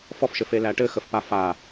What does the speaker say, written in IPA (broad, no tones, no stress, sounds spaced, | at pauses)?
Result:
f ɔ f ʃ ɘ f e l æ ʈ ɘ x ə f p a f a